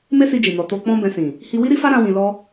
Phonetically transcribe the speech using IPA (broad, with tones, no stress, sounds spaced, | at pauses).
m e˦ s i˧ d͡ʒ i˨ n ɔ˨ t o˧ k͡p ɔ̃˦ b ɛ̃˧ s ĩ˨ | h i˧ w i˦ ɾ i˦ f a˦ ɾ ã˦ w ĩ˧ l ɔ˦